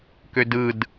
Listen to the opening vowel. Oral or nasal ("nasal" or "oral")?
oral